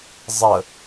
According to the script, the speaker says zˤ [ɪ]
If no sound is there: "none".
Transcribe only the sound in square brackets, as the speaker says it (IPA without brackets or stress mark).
ə